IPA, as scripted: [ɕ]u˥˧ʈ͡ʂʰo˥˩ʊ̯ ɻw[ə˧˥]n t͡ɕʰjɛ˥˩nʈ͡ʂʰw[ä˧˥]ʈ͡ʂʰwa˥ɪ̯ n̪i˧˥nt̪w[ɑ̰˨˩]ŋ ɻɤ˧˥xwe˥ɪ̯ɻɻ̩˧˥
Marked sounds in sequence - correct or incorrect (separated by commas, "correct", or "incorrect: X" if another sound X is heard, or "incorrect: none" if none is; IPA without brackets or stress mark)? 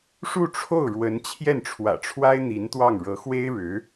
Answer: incorrect: ʂ, correct, incorrect: ä̰˨˩, incorrect: ɑ˥˩